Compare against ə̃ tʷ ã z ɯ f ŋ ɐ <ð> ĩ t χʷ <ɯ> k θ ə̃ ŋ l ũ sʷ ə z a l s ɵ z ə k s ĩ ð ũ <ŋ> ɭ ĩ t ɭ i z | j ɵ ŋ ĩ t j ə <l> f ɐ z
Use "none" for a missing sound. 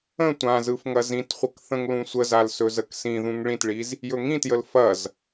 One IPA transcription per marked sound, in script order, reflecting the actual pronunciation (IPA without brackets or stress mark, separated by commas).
z, ə, ŋ, l